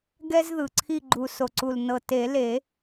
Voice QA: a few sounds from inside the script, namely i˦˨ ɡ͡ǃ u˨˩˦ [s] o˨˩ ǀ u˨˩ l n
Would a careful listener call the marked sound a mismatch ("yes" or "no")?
no